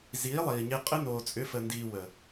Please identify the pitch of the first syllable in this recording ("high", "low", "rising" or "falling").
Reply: rising